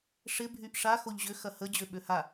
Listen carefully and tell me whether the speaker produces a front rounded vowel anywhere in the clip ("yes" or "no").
yes